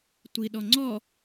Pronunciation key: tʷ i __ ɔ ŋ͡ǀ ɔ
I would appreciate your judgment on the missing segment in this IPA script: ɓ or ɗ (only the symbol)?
ɗ